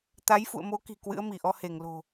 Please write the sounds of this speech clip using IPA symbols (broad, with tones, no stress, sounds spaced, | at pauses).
t̪ a˨˦ j f ṵ˧˨ ə̯ m o˨˦ k i̤˨˩ k w ɨ̰˧˥ ə̯ m i˧˩ ʔ ɔ˧ h e˧˩ ŋ l o̤˨˩